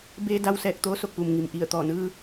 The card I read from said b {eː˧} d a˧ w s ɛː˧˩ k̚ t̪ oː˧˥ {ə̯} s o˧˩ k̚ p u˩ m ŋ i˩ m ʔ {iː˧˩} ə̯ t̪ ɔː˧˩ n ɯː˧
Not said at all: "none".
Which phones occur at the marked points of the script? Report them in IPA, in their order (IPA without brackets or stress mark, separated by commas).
eː˧, none, i˧˩